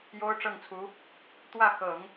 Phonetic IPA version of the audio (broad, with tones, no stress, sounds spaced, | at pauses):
j o˥ ʊ̯ ʈ͡ʂ ɤ˥˩ ŋ t͡sʰ u˧˥ | t̪ w ä˥˩ x ɤ˨˩˦ ŋ